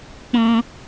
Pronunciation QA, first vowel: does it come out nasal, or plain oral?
nasal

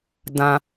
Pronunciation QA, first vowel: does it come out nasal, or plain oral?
nasal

